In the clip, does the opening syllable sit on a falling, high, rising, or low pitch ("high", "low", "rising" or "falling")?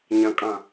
low